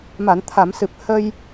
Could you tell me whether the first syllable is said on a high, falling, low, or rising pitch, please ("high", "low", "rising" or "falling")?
low